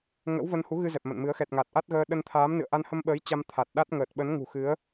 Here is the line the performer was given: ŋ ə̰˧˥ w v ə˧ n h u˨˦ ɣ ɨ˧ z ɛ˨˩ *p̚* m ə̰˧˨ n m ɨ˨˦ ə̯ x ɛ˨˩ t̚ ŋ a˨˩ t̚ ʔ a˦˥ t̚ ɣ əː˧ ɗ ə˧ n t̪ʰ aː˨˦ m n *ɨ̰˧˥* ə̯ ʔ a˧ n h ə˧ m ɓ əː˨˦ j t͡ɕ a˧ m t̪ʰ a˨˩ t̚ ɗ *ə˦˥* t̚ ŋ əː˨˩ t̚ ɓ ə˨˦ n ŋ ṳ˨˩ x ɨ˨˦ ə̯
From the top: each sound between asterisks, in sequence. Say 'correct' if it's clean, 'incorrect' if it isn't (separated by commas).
correct, incorrect, incorrect